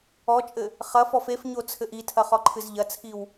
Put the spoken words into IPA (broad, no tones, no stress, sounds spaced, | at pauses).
ɔ t͡ʃʼ ɘ | χ ɐ f ɔ f e f ɲ o t͡sʰ ɘ ʔ i tʰ ɐ χ ɔ ǃʰ ɨ z ʎ ɐ t͡sʰ i w